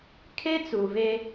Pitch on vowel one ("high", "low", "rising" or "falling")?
high